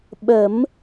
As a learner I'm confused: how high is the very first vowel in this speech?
mid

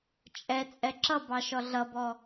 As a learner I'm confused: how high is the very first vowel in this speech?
mid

